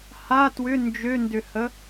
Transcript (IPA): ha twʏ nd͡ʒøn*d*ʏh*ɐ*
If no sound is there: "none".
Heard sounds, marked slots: d, ə

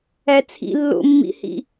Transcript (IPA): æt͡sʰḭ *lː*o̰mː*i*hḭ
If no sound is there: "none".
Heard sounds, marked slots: lː, ḭ

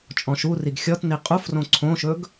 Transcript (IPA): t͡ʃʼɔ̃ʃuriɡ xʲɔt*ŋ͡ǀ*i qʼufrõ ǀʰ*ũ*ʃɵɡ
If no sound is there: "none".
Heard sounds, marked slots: n, õ

